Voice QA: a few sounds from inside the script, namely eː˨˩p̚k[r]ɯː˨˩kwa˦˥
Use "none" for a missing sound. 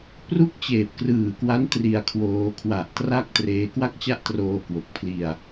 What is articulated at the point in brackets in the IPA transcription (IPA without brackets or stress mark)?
r